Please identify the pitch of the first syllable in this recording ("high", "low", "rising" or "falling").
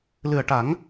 low